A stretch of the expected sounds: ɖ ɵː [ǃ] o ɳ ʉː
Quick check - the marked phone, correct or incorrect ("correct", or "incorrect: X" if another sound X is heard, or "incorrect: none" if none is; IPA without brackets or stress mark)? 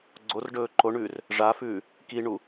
correct